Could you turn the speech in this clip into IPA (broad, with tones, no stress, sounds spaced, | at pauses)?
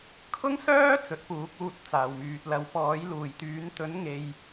kʰ ʊ˥ ŋ s œː˥ t͡s ɵ˨˥ t̚ p uː˨˥ k̚ uː˧ t̚ t͡s aː˨ w m yː˨ t̚ l ɐ˨˧ w p ɔː˨˥ j l uː˨˩ j t̪ yː˨˥ n t̪ ɵ˨˥ n ŋ e˨ j